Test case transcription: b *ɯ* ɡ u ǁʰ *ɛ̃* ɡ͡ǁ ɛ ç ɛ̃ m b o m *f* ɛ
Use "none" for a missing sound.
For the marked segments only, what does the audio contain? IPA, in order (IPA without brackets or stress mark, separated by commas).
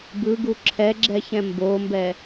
ɯ, ɛ, b